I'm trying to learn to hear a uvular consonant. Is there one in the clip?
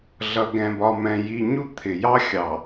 no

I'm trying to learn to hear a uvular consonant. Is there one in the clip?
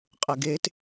yes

